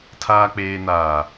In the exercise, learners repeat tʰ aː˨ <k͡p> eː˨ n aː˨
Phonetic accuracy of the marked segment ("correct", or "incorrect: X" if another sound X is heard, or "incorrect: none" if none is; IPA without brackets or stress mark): correct